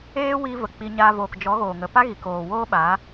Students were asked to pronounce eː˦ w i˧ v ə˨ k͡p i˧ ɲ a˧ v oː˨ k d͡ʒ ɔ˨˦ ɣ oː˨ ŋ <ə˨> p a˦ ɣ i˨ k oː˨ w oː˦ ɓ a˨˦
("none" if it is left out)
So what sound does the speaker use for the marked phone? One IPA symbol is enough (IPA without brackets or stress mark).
ə˨